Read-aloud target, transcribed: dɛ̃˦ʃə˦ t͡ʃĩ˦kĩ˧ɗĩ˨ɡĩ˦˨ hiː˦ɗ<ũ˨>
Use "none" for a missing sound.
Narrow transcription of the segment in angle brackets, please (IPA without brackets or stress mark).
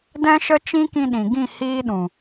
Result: ũ˨